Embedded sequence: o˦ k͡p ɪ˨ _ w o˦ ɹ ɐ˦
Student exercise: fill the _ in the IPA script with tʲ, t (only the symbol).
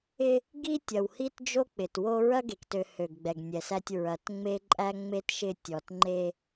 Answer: t